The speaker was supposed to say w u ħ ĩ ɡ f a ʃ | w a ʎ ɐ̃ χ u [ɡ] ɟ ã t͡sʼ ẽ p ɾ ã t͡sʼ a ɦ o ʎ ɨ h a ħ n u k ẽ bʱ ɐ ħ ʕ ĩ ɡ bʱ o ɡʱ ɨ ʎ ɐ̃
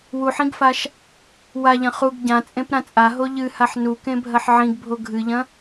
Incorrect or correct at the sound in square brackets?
correct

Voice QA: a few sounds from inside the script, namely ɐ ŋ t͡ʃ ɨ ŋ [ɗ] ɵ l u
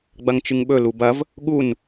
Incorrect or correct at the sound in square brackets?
incorrect: ɓ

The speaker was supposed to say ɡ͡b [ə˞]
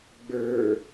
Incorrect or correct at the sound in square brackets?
correct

